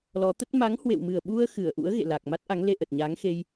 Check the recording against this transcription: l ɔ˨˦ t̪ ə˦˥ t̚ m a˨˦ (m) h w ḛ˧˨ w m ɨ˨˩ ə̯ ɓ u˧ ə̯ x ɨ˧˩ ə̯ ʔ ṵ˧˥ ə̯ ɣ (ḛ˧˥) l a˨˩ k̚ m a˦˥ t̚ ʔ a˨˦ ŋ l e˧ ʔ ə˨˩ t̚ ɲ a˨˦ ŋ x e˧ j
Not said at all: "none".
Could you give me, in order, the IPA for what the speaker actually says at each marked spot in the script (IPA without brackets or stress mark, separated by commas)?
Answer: ŋ, ḛ˧˨